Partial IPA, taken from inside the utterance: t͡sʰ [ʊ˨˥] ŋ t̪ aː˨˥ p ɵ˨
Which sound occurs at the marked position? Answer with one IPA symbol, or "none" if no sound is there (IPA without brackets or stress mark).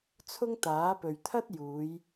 ʊ˥